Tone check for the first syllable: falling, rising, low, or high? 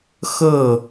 falling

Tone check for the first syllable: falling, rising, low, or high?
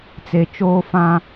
low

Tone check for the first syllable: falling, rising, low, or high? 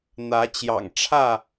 rising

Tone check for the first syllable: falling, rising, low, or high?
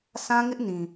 high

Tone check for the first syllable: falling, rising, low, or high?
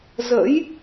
rising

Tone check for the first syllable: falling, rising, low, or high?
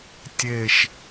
falling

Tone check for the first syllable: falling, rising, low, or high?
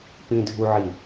high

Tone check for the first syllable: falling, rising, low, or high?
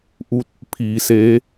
rising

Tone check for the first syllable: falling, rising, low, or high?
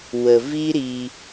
low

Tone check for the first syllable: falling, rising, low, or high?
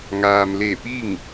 low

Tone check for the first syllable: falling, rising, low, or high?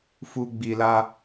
low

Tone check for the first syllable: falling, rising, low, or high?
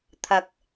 rising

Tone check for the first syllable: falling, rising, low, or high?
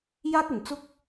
high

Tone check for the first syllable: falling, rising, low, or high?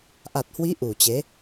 low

